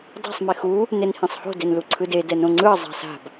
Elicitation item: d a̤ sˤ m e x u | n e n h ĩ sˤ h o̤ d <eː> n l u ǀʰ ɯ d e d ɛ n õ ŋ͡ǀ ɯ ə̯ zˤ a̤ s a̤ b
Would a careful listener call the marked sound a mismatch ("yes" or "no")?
yes